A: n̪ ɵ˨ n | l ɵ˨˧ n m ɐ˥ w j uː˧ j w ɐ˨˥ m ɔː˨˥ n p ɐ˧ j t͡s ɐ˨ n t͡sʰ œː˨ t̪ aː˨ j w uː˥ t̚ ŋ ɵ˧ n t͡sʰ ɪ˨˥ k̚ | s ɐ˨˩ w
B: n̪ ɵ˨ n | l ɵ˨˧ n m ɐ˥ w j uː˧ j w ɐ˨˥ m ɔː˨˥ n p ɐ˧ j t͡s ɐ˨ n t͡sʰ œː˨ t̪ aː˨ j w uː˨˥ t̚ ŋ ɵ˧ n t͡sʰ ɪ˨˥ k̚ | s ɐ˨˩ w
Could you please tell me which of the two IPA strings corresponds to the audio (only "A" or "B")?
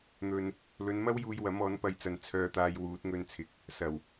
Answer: B